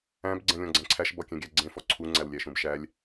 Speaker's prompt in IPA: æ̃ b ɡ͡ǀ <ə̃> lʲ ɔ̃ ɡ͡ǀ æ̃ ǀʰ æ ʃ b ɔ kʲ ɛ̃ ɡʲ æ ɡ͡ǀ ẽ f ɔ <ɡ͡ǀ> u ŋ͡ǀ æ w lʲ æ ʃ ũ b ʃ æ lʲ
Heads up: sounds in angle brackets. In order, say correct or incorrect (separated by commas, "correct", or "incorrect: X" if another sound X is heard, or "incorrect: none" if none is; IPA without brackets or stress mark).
incorrect: ɛ̃, incorrect: ǀʰ